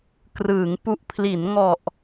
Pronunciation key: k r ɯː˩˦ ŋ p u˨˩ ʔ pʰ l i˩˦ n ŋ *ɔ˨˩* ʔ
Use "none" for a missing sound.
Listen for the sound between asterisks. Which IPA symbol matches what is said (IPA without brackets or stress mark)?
ɔ˨˩